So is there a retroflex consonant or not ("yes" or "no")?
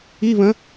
no